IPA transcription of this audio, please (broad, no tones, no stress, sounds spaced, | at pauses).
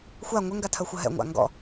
xʷ a ŋʷ ə ŋ ɡ a tʰ ɐ xʷ ɐ ɦ ɛ̰ ŋʷ a̰ ŋ ɡ ɔ̰